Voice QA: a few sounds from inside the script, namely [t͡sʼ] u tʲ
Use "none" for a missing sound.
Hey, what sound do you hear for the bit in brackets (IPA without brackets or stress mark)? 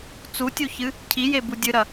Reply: t͡s